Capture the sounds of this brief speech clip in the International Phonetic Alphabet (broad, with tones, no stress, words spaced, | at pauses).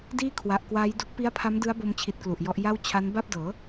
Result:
diː˥˩ kʰwa˨˩ʔ kwaː˦˥jdu˦˥k̚ pi˦˥a̯pʰa˦˥mdɯ˦˥a̯bo˧m t͡ɕʰi˦˥t̚klu˨˩ʔjɔ˦˥ʔ ja˥˩wt͡ɕʰa˦˥n ba˥˩p̚dɤː˩˦